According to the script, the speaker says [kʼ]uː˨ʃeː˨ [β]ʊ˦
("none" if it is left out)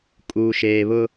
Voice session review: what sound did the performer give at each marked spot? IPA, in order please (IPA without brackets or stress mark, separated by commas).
kʼ, β